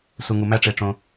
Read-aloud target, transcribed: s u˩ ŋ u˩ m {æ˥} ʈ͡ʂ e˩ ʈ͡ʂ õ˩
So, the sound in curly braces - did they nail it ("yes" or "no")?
yes